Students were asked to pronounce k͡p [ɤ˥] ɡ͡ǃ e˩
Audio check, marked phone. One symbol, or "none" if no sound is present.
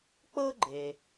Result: ɤ˥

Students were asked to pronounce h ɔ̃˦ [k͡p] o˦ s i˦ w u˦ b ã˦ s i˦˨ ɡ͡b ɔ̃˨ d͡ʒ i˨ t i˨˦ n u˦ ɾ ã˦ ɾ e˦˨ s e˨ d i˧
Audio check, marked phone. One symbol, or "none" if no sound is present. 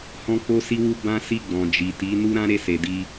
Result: k͡p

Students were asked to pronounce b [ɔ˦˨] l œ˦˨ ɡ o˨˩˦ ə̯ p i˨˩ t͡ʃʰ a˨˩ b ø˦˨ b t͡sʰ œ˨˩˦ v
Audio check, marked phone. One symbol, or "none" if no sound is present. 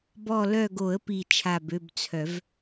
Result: ɔ˦˨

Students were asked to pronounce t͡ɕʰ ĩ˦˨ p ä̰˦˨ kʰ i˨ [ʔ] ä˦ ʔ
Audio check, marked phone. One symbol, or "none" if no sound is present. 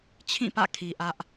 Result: ʔ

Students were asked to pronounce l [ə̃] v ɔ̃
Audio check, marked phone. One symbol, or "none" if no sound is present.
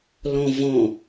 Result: ɔ̃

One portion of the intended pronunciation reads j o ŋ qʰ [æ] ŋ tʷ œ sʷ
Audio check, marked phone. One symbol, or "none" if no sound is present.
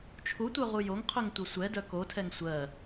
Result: œ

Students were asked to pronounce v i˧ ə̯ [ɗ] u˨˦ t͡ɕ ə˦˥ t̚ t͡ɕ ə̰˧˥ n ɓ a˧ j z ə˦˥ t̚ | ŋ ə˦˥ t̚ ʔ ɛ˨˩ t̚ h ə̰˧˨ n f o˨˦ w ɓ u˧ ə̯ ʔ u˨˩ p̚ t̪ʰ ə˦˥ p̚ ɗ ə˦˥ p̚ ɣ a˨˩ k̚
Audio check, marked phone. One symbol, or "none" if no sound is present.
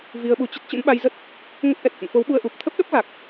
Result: ɓ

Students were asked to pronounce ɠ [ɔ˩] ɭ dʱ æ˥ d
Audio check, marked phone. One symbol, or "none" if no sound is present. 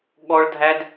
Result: ɔ˥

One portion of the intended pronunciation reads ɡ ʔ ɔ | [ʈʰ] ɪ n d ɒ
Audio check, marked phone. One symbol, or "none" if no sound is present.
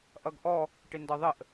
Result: ʈ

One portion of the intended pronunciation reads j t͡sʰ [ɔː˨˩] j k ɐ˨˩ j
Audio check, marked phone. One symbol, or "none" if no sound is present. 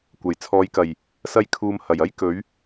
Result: ɔː˨˧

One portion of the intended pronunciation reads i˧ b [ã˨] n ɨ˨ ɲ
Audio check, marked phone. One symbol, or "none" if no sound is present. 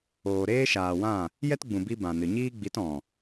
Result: ã˨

